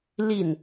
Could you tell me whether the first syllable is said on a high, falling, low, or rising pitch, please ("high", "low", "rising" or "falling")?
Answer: falling